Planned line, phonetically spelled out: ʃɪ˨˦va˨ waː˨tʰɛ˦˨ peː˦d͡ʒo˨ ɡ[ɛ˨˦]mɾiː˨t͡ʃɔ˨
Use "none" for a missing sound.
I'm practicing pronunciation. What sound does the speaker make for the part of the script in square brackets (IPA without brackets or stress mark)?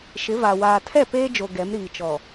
ɛ˨˦